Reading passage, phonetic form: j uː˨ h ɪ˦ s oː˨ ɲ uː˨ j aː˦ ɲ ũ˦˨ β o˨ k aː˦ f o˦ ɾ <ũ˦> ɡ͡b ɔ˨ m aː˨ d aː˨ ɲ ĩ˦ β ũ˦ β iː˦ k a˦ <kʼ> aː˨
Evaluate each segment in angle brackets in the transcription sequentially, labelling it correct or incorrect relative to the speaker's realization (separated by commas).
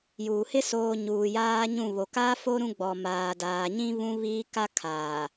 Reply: correct, incorrect